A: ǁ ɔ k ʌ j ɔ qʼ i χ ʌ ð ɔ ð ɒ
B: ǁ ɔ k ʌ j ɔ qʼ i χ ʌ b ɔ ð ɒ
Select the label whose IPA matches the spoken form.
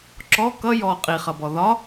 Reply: B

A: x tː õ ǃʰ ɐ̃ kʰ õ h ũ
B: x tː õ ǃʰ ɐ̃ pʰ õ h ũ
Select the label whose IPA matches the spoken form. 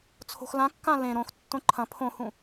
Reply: B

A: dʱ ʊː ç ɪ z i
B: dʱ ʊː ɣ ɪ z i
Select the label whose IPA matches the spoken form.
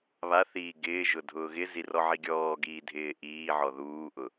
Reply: B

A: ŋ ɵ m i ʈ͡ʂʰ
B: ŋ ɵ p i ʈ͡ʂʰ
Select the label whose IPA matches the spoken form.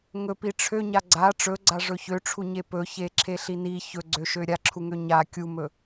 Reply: B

